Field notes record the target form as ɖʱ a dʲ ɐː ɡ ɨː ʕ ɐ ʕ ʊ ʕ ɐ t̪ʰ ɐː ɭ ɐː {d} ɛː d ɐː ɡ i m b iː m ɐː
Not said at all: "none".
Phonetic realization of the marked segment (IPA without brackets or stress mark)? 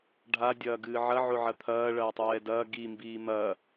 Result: tˤ